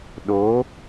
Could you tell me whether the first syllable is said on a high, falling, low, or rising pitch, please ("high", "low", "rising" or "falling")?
rising